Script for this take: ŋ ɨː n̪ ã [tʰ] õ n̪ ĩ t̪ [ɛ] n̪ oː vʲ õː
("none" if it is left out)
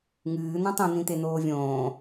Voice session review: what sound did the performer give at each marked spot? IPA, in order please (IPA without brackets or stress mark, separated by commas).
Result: tˤ, e